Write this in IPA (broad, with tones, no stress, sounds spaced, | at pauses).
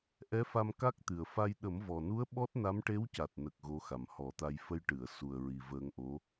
ʔ ɛ˧˥ f a˧ m k a˦˥ k̚ t̪ ɨ˨˩ ə̯ f a˧ j ɗ ə˨˩˦ m v ɔ˨˩ n u˧˥ ə̯ ɓ ɔ˦˥ t̚ n a˧˥ m ʈ e˧˥ w c a˨˩ t̚ n ə˨˩ k̚ ɣ o˧˥ x a˨˩ m h ɔ˨˩˦ t̪ a˧ j f ə˧ j ʈ ɨ˨˩˨ ə̯ s u˨˩ ə̯ ɹ i˨˩ v əː˧ ŋ ʔ o˧˥